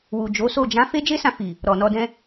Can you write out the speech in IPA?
wu˨d͡ʒo˨˦so˦˨ d͡ʒã˨˦ fe˦d͡ʒe˦sã˧fi˨ | ɾɔ˨nɔ˧dɛ̃˦

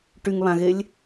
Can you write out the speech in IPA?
ʈyŋβãɣelʲ

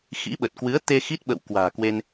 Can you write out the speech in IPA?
xḭ˧˥ɓə˨˩t̚kwɨ˨˦ə̯ t̪e˧xi˦˥t̚ ɓə̰˧˨w kwa̤ː˨˩kwe˧n

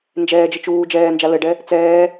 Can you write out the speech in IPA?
nd͡ʒɛːd͡ʒɘ t͡ʃuː d͡ʒɛːnd͡ʒa lɘɖɛ | t͡sɛː

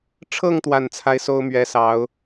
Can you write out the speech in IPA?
ʈ͡ʂʰɤ˥˧ŋ t̪wa˥˩nt͡sʰa˥ɪ̯so˥ʊ̯ mɥɛ˥sɑ˧˥ʊ̯

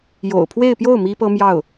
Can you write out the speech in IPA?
jo̰˨˩ʊ̯pʰwe˥˧ɪ̯pjo˥˩ʊ̯ mi˥pɤ˥mjɑ˥˩ʊ̯

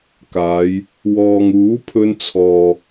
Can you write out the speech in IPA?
kaː˨˧j | wɔː˨ŋuː˨˥pʰɵ˧n t͡sʰɔː˨

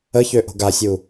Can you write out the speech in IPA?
əçø ʔo̤ɡasʲu

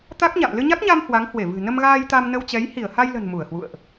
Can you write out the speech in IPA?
t̪a˦˥k̚ɲa̰˧˨m lɨ˧ɲa˦˥k̚ɲa˧m hwa˨˦ŋhwe˧˩vɨ̤˨˩ nə˧mɣaː˧jt̪a˧m nə˧wt͡ɕɛ˨˦j hi˧˩ə̯ha˧jlə̤˨˩n mu˧˩ə̯hwṵ˧˨ə̯ʔ

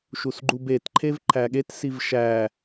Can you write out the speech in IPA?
ʃusɡ͡ǃubet ǃʰevǃʰæɠet sivʃæ

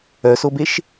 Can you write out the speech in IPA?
œsobeʃ

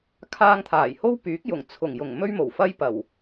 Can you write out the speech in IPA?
kʰaː˧ŋt̪ʰaː˨˩jho˥w pyː˨˥k̚jʊ˨˩ŋ t͡sʰʊ˨˩ŋjʊ˨˩ŋ mɵ˥ɥmo˨˩wfɐ˥j pɐ˨˩w

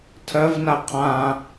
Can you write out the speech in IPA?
tʰɜvna qʰã

